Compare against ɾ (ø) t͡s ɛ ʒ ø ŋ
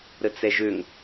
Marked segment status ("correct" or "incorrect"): incorrect